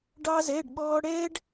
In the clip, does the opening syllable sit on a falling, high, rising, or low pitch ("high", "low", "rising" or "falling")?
high